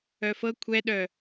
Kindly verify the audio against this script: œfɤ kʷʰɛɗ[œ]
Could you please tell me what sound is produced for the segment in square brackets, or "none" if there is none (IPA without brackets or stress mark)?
œ